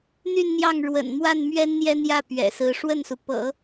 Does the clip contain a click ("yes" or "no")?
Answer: no